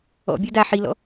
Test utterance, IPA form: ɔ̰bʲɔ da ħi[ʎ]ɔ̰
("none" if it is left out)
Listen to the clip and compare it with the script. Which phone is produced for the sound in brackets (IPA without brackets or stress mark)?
l